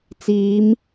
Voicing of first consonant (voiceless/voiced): voiceless